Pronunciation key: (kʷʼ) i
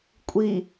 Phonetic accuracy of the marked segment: correct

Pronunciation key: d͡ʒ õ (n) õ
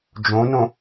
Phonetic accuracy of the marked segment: correct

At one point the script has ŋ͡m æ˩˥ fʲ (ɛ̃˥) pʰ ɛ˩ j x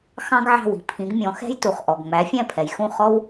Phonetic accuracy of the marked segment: incorrect: ɛ̃˥˩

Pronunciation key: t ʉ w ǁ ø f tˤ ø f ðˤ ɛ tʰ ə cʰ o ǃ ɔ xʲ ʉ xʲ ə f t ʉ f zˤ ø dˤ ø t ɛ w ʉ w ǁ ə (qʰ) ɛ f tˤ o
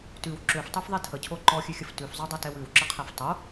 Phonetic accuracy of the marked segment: correct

